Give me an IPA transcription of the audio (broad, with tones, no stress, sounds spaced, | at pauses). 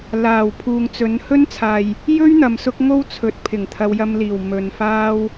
l aː˨˩ w pʰ uː˨ ŋ t͡s ɵ˨˥ n h ɵ˥ n t͡sʰ aː˨ j | j ɵ˥ ɥ n̪ ɐ˨ m s ʊ˥ k̚ ŋ o˥ w t͡sʰ ɵ˨˥ t̚ pʰ ɪ˨˩ ŋ t̪ʰ ɐ˨˧ w j ɐ˧ m l iː˨˩ w m ɵ˨ n f aː˥ w